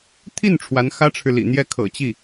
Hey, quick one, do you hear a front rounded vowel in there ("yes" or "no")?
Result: no